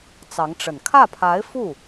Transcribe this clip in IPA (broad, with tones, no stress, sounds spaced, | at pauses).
t͡s ɑ˧˥ ŋ ʈ͡ʂ ə˨˩ n kʰ ä˥˩ pʰ a˧˥ ɪ̯ f u˥˩